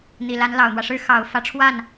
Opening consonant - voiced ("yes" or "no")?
yes